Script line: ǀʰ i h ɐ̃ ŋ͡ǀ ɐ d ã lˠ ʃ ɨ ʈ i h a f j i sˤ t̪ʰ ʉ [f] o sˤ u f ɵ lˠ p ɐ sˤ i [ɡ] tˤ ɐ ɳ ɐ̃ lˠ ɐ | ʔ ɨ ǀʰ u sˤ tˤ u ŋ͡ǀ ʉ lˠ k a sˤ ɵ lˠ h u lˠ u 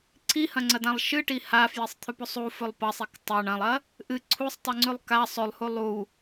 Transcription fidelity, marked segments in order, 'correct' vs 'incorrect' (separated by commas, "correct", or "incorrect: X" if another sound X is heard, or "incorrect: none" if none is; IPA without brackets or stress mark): incorrect: p, incorrect: k